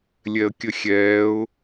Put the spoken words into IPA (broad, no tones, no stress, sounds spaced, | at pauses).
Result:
lʲ ɛ ə̯ kʲ ə xʲ ɛː ʊ̯